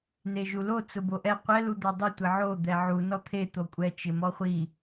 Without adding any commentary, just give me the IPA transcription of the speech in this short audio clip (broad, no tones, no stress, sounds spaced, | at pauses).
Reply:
n e ʒ u l o t͡s ʊ b o ʔ ɛ qʷ ɛ l u d̪ a dˤ ɪ tʷ ɪ ʕ o d̪ ɛ ʕ u n ɔ t̪ʰ e t̪ o kʷʼ ɛ t͡ʃ ɪ m ɔ χʷ i